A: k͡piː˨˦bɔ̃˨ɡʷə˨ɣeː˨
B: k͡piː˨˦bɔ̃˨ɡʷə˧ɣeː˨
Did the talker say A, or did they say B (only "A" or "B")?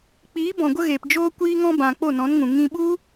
B